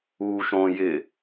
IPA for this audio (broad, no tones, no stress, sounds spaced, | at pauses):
uː ʃ õ j ɪ